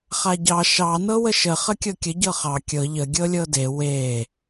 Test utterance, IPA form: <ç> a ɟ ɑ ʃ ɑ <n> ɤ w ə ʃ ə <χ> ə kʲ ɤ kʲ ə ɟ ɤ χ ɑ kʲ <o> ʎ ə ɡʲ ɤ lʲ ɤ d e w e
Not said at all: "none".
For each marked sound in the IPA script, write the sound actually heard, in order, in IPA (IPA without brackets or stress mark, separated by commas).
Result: χ, n, χ, ɤ